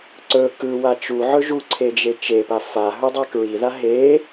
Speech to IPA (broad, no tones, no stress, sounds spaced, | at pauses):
ǀ ɵ k ɯ w a t͡ʃ u ʕ ɵ ʒ u ǀʰ e d͡ʒ e t͡ʃ e p a f a ɦ ɵ dˤ a k ɹ i ð a ɦ e